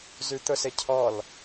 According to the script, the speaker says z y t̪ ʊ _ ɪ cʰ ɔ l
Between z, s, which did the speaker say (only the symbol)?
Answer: s